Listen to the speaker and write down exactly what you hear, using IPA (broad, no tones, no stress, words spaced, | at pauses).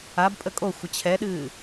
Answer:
abpʼə kʼoxʷə t͡ɕʰɛɗɨː